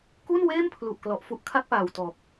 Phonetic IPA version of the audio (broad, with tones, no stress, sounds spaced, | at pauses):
k u˥˩ n w eː˥˩ m pʰ l u˨˩ ʔ k l ɔ˨˩ ʔ f u˦˥ ʔ kʰ a˥˩ k̚ p aː˨˩ w t ɔː˨˩ k̚